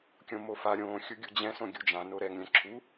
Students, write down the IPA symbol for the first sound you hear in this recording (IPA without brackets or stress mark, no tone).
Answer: kʲ